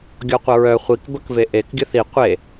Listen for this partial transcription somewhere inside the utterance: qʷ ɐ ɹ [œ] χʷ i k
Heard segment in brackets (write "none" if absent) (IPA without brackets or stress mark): œ